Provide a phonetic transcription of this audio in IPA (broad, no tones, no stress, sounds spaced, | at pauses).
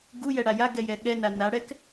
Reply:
ɡ u j ɛ ɽ a j a ɡ ɛ j ɛ ɠ ɛ n a n a ɽ ɛ k